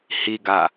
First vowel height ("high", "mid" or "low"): high